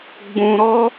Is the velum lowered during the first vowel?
yes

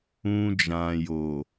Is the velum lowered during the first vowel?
yes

